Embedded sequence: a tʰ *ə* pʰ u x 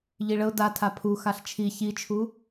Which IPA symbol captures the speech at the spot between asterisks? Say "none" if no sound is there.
a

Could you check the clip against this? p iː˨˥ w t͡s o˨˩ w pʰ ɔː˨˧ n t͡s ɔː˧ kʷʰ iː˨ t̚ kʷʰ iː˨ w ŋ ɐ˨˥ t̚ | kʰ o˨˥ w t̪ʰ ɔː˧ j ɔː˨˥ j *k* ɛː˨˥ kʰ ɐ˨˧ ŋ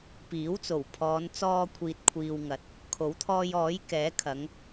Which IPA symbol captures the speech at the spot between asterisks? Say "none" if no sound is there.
k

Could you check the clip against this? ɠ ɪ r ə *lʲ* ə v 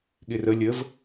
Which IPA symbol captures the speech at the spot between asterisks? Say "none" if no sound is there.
lʲ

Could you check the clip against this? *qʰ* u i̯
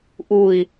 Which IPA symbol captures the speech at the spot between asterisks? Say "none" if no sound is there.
ʔ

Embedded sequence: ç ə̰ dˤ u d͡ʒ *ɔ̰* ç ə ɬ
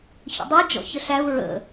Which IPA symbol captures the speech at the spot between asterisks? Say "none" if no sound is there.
ɔ̰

